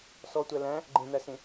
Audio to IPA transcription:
s ɔ tʷ æ l æ̃ | ɡ͡ǃ ẽ n̪ æ s ẽ

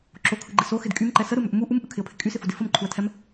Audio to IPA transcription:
ǁ o kʰ ɯ ɡ͡ǃ ɪ s o x ɪ d kʼ y m ǃ ɛ s ə ɾ ɯ m ʏ ʔ m u ʔ u m ʔ ɯ kʰ ɪ ə̯ pʰ ɪ kʼ y s ɪ f u d ɪ f ə m ǃʰ u ə̯ tʰ ɛ m

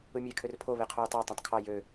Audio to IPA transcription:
ɯ mʲ e kʰ ø r pʰ o β e qʰ o j tˤ ɑ tˤ ɑ̃ tˤ kʰ ɑ j ø

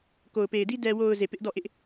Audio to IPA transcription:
k o˨ ʊ̯ p e˨ ɪ̯ d i˦ d ɛ˨ w o˨ ʊ̯ z e˨ p ɪ˦ ʔ d ɔ˦˨ ʔ ɪ˦ ʔ

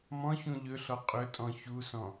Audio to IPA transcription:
m ɔ̃ ç ũ ʎ ɵ ɬ ɔ qʼ ɵ tʼ ɔ̃ ç u s ɔ̃

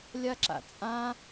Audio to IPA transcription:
lʲ a ǁ a̰ t͡sʼ ã

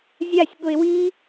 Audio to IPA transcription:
zʲ a sʲ ɠ ʊ ɪ̯ w i

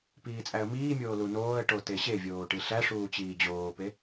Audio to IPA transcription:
p iː t͡sʼ æ ə̯ m iː mʲ oː l u n oː ə̯ ʈ o t e ɕ e vʲ oː ʈ i ɬ æ ʂ uː t͡ɕ iː d͡ʑ oː p e

